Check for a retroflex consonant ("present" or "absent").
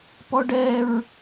present